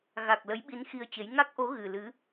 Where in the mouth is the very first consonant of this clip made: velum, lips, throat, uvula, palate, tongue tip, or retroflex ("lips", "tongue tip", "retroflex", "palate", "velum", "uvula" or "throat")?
velum